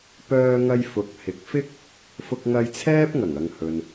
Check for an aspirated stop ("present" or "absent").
present